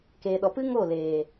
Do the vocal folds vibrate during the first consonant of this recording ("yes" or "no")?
no